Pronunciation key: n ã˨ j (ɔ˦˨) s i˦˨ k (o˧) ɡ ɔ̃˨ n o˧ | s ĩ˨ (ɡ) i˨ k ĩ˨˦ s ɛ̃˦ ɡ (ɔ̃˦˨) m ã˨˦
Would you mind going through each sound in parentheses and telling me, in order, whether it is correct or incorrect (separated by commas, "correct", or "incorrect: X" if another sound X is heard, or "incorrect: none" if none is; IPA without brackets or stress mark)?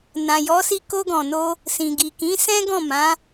incorrect: ɔ˨˦, correct, correct, correct